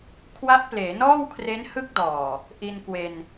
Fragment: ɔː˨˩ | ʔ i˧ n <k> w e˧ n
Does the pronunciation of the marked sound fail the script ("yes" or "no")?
no